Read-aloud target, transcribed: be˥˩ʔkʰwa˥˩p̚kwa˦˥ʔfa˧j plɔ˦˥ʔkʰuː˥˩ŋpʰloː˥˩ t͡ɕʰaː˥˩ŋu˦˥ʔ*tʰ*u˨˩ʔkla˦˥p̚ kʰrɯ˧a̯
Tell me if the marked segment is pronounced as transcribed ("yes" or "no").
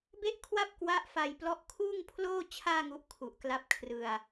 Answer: no